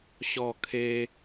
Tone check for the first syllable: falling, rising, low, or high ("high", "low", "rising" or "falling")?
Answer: falling